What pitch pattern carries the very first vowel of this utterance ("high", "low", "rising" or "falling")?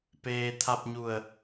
low